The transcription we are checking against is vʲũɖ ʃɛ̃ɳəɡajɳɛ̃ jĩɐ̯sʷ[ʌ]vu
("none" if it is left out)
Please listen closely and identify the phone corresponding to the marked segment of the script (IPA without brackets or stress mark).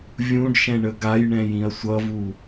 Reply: ʌ